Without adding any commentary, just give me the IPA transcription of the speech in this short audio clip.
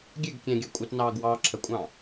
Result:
ɡʲ ɛ ɡ kʲ ɛ̃ ɡʲ ɑ kʷʼ ɪ t n ɑː ɡ w ɑː ǁʰ ə kʷʼ ɑ̃

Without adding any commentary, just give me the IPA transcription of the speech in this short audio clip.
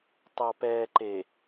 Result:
tˤ ɑ˨ p ɛː˨ ǃ e˨

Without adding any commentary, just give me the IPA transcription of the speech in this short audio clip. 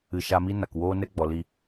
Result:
ɨ˨ ʃ a˧ m i˦ n a˨ k w oː˦ n ɛ˦ ɡ͡b ɔ˨ l i˨

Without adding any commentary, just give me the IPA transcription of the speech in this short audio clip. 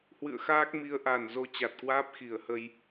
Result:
h w ɨ̰˧˨ ə̯ x aː˦˥ k̚ m i˨˦ ə̯ ʔ a˨˩ n z o˧ t͡ɕ a˨˩ t̚ k w aː˦˥ p̚ x i˨˩ ə̯ h ə˧ j

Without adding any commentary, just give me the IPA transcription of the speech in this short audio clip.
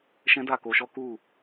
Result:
ʃ ɛ̃˦ d a˦˨ k o˧ ʃ ɔ˦ k u˦˨

